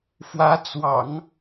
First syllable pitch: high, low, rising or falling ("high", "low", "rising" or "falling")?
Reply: rising